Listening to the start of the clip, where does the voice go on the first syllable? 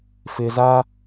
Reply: low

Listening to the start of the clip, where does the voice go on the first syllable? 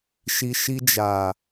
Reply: low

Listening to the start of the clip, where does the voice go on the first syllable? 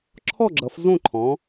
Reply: falling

